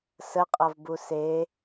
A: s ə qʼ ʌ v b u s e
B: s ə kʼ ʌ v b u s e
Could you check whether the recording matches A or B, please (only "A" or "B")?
A